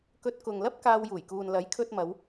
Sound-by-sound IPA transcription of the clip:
k ɵ˧ t̚ k ʊ˨ ŋ l ɐ˥ p̚ k aː˧ w j uː˨˩ j k uː˨ n l ɐ˨˥ j kʰ ɵ˧ t̚ m ɐ˨˧ w

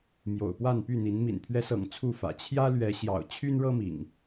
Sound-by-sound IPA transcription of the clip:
m j o̰˨˩ ʊ̯ p w a˥˨ n p y˥˨ n̪ i˨˦ n m ḭ˨˩ n pʰ ɥ ɛ˦ s ɤ̰˨˩ ŋ t͡sʰ u˥˨ f ä̰˨˩ t͡ɕʰ j ä˦ l ɥ ɛ˨˦ ɕ j ɑ̰˨˩ ʊ̯ t͡ɕʰ y˦ n ɻ ɤ˦ m ḭ˨˩ ŋ

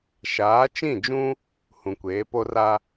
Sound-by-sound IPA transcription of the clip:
ʃ aː˨˦ t͡ʃ ĩ˦˨ d͡ʒ ũ˦ | h ũ˨ kʷ eː˨˦ p o˦ r a˦

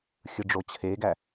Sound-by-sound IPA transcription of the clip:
xʲ ɯ ɖ͡ʐ o t͡ɕʰ e ɡ æ

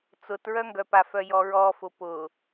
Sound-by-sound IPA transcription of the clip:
t͡s ʊ t ɹ œ ŋ ɡ œ p a f œ j ɔ ɹ ɔ f ʊ p ʊ

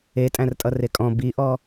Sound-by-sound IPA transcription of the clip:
e tʼ æ̃ r tʼ ʌ r e kʼ ɔ̃ b i ʔ ɔ

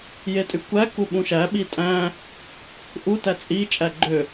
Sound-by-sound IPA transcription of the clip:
j e tʼ y kʷ æ k u ɓ ũ ʃ æ ɓ i tʼ æ̃ | ʔ u t æ t͡sʼ i t͡ʃʼ æ ɡ͡ǃ ø

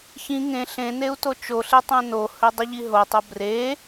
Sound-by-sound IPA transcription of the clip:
ç ĩ ŋ ẽ ɬ ẽ n e u̯ t o t͡ʃ o ɬ e tˤ ẽ n o h ɵ dˤ ɨ ʎ i ɦ o tˤ o b r e

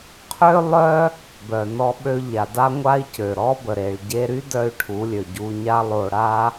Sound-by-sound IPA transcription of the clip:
qʰ ø˦ lˠ œ˦ | b œ˨ n ɔ˧ ɓ ø˧ ʎ a˨ d a˦ ŋʷ a˦ i̯ c ø˨ ɾ ɔ˦ b ə˨ ɾ e˨ ɭ ɟ e˧ ɾ y˦ d œ˦ y̯ ʈʰ u˨˦ lʲ ø˨ ɟ u˧ ɲ a˦ lˠ o˧ ɽ a˦

